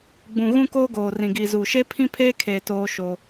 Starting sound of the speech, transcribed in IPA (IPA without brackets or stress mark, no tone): ɡ͡b